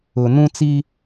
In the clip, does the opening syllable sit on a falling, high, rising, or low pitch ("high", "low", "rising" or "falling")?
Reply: low